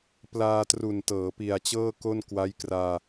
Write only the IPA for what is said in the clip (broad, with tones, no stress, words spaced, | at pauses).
plaː˧tru˨˩n tɤː˩˦pi˨˩a̯t͡ɕɤː˥˩ ko˥˩nkwa˦˥jkraː˧